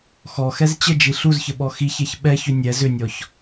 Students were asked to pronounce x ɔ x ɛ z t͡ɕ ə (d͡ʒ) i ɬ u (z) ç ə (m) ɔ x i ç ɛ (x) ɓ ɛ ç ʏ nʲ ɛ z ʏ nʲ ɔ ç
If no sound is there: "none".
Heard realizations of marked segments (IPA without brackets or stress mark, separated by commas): d͡ʒ, z, ɓ, ç